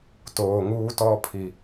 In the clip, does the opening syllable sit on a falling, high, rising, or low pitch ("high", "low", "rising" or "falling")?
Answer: low